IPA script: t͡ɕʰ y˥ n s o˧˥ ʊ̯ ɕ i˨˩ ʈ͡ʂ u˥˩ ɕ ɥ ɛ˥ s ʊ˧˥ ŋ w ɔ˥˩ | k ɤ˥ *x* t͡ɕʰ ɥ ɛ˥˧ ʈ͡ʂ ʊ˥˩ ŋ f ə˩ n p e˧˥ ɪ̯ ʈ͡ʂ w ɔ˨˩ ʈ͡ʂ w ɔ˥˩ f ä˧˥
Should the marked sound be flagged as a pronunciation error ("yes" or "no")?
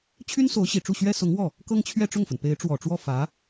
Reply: yes